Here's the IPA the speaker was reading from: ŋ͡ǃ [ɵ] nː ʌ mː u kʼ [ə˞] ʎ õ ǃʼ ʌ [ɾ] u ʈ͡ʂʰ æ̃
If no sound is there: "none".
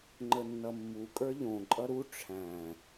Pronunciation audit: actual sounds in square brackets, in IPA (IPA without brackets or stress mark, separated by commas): ə, ə˞, ɾ